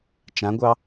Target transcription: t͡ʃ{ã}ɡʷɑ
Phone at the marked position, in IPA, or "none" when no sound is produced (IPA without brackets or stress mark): ã